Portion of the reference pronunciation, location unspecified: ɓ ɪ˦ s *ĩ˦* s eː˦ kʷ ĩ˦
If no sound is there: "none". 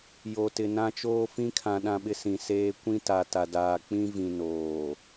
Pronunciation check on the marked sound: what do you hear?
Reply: ĩ˨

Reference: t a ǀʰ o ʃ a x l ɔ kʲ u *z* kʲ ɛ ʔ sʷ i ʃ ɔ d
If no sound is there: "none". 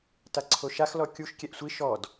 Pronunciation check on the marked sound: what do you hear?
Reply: ʃ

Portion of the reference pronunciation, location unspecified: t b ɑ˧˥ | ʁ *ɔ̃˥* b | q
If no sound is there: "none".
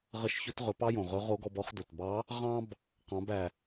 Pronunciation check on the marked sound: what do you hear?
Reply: ɑ̃˥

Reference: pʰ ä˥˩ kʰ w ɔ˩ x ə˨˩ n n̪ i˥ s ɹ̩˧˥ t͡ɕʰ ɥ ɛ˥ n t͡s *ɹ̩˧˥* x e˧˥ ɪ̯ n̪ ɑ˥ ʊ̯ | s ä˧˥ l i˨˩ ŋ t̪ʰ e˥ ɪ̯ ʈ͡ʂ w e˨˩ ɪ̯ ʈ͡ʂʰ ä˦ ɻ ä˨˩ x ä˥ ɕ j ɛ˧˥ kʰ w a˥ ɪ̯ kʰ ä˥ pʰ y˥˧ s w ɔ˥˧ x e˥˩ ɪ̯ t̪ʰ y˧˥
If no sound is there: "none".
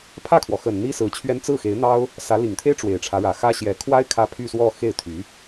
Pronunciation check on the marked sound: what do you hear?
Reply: ɹ̩˥˩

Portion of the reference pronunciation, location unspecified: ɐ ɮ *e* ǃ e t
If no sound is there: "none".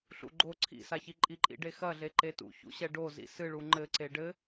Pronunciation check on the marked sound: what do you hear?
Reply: e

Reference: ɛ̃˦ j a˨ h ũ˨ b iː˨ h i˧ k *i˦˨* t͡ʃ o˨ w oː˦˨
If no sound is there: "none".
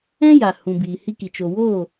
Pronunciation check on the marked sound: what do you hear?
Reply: i˨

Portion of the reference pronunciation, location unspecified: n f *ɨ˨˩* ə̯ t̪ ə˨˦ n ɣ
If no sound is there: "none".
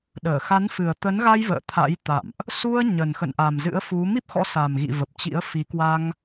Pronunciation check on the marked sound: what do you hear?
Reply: ɨ˨˩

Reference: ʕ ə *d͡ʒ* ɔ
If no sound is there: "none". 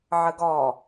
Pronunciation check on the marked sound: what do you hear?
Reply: ɡ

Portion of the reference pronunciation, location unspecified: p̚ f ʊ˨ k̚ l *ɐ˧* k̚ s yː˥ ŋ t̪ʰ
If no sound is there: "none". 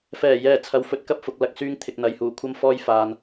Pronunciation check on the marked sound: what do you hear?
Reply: ɐ˧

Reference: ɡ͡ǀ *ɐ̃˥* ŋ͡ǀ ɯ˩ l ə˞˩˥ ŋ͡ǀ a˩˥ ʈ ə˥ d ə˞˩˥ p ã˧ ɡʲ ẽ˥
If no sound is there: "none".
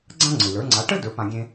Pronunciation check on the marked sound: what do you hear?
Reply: ã˥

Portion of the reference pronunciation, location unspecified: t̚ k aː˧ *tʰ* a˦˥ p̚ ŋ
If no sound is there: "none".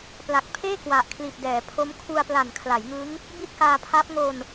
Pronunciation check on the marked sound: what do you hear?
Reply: pʰ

